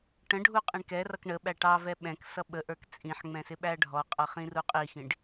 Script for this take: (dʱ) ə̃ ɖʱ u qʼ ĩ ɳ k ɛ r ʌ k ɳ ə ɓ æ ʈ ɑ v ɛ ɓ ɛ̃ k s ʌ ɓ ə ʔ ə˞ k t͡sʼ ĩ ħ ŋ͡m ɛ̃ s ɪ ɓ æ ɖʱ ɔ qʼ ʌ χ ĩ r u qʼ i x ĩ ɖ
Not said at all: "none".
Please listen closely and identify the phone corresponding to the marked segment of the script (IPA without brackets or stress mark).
ʈ